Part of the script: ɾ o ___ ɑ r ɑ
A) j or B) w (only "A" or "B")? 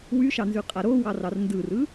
B